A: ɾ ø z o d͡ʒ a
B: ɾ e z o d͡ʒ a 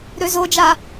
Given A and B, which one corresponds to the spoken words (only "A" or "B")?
A